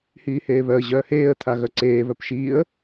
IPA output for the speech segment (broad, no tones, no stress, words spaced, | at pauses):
hiːheːβœə̯ ʑœːheːə̯ t̪ʰaɣœǀeː βœpʃiːə̯